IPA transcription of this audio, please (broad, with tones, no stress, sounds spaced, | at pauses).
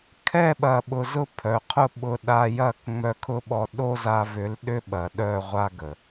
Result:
kʰ ɛ˦˨ ɓ ɐ˨ ɓ ʊ˨ z ʊ˦ pʰ œ˨ qʰ ʊ˦ ɓ ʊ˧ ɗ a˧ j ɐ˦˨ k ŋ͡m œ˧ kʰ ʊ˦ ɓ ɔ˧ ɗ o˦ z a˧ v ʏ˨˦ l ɗ ʏ˦ ɓ ɐ˨ ɗ œ˦˨ ʁʷ a˦ ɡ ə˨